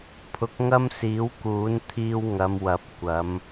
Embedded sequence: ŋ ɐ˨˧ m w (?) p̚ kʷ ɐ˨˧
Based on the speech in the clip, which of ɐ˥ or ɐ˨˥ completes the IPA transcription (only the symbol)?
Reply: ɐ˨˥